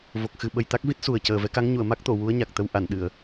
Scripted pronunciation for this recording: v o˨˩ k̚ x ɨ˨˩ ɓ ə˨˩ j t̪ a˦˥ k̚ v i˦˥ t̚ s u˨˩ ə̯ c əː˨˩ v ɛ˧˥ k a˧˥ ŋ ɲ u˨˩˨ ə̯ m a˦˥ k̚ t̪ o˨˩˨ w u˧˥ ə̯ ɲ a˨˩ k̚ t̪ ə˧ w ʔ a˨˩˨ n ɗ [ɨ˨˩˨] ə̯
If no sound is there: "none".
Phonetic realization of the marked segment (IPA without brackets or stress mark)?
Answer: ɨ˨˩˨